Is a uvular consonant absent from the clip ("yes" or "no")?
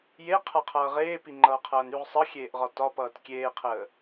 no